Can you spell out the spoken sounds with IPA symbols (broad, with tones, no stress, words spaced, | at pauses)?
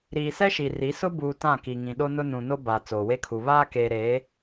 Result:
ɾiː˨sɛ˦ʃi˨ ri˨˦sʊ˦ buː˨ tã˦˨ki˨ŋĩ˨ ɗo˦nʊ˦ nũ˨no˦ ba˨ t͡soː˨we˦kʰu˨ βaː˦keː˨ ɾeː˨˦